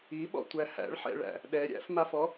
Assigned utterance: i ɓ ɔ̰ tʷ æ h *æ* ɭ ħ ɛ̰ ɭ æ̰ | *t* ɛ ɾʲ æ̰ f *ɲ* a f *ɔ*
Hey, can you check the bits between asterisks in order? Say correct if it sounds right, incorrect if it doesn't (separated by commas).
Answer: incorrect, incorrect, incorrect, correct